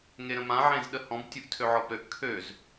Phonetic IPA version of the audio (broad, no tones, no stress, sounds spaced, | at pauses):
ŋ e ɾ ə̃ m ã ʕ ẽ z ɗ ə h ɔ̃ b tʲ u ʔ tʰ ø ʕ ɔ b ɾ ø ʔ kʰ ø z